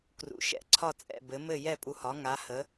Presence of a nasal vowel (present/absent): absent